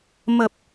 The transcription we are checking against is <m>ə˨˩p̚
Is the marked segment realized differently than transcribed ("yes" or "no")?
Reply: no